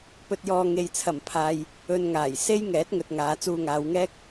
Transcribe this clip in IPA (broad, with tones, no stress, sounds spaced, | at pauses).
p ɵ˧ t̚ j ɔː˧ ŋ e˨ j t͡sʰ ɐ˨˩ m pʰ aː˨ j | ɵ˧ n ŋ aː˨˩ j s e˥ j ŋ ɛː˨˥ t̚ ŋ ɵ˨ t̚ ŋ aː˨˧ t͡s uː˧ ŋ aː˨˧ w ŋ ɛː˥ k̚